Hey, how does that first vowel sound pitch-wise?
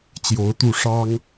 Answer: rising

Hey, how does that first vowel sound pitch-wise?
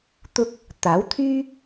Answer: high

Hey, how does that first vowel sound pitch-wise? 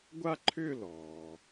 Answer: falling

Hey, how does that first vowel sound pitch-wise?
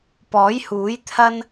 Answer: rising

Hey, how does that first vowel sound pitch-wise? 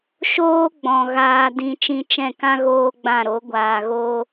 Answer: high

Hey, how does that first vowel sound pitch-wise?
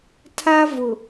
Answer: high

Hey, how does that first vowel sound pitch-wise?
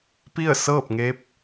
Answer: falling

